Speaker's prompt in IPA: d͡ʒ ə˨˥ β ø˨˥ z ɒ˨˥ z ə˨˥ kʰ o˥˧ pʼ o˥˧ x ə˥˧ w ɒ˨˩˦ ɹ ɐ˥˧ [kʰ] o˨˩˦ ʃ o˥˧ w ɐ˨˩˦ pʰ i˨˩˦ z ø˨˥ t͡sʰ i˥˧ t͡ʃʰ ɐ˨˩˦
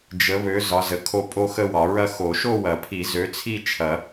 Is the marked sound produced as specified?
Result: no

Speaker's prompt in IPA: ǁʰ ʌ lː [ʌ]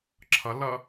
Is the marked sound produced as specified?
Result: no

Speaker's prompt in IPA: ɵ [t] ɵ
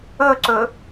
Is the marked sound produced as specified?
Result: no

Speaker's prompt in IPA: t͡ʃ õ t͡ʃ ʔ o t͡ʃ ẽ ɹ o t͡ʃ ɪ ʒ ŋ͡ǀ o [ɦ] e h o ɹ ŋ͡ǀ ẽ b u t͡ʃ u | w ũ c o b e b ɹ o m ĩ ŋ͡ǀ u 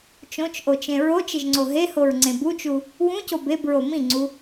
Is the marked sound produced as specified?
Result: yes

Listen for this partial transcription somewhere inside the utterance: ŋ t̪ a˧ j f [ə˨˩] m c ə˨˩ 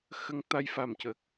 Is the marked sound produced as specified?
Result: no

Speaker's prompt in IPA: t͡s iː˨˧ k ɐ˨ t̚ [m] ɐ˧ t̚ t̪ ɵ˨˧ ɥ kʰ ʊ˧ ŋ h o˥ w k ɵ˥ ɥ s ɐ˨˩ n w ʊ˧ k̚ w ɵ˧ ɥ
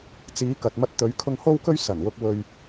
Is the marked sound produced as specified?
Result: yes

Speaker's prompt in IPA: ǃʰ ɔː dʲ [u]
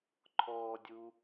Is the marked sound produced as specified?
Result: yes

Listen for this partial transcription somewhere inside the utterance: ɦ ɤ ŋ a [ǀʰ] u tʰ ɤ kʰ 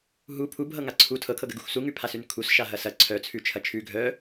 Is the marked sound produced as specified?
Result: yes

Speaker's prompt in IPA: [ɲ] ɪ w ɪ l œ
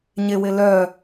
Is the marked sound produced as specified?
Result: yes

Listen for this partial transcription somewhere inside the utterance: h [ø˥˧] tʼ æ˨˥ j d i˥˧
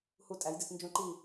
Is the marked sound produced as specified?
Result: no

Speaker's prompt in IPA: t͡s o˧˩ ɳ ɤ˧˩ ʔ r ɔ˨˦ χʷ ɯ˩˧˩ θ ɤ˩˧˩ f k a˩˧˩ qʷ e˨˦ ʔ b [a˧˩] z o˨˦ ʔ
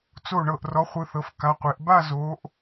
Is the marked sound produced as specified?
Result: no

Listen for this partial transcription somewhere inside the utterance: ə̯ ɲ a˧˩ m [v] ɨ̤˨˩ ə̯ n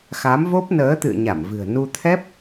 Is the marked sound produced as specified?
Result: yes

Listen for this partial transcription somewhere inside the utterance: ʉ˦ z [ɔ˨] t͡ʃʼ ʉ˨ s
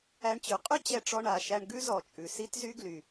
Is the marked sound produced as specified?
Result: yes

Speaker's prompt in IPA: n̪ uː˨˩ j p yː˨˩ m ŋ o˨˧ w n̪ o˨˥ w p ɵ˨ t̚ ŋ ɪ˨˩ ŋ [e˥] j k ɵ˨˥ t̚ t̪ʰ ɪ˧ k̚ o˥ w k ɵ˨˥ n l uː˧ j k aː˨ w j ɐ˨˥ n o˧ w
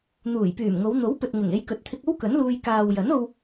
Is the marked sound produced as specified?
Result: no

